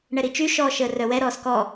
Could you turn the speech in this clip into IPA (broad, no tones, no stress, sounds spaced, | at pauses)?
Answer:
ɳ ɛ ɾ i t͡ʃ y ʃ ɔː ʃ əː r œ w ɛ ɾ ɔː s k ɔ